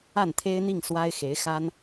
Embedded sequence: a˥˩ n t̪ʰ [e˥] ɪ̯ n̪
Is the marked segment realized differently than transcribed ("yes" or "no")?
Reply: no